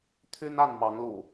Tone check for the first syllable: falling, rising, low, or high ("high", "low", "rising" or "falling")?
high